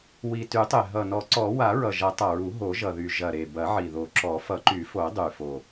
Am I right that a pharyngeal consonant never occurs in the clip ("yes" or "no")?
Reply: no